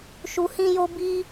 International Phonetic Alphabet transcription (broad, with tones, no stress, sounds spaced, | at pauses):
ʃ u˨ h ĩ˧ j o˧ b i˧